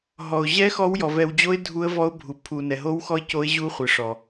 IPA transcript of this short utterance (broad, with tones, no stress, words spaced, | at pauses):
ɦɔ˩ʊ̯ʑɛ˧˥ xɔ˧˥wjɔ˩ vɛ˩wd͡ʑo˧˥ɪ̯ dʱu˧˥ə̯vɔ˧˥ʊ̯ bʱu˩ pʰu˩ nɛ˩ɦo˧˥wxɔ˧˥ɪ̯ co˧˥ɪ̯ ʑu˧˥χʷɪ˩ʂɔ˩